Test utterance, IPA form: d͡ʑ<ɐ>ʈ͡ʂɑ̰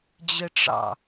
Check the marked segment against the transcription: incorrect: ə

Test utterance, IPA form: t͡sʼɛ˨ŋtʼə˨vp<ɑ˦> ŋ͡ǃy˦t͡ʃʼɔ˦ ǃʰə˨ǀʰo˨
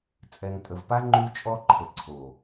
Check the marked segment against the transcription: incorrect: a˦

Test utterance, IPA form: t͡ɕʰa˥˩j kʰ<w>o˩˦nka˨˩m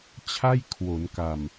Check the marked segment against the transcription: correct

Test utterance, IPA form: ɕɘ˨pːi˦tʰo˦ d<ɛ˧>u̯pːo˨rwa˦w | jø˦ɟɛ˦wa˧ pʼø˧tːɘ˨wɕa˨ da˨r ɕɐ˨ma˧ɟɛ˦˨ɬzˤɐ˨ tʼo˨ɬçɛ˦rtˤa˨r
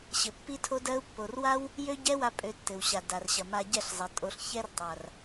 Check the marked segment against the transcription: incorrect: ɜ˧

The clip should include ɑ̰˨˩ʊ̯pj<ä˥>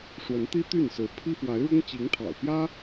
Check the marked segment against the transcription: correct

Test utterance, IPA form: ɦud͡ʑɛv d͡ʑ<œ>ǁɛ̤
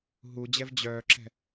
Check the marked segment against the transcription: correct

